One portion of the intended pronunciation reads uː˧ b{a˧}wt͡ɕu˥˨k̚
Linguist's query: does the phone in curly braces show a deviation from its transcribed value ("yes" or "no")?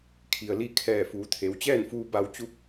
no